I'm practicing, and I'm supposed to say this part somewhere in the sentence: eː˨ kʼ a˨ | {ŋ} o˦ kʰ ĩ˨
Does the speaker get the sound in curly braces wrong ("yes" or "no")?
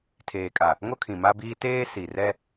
no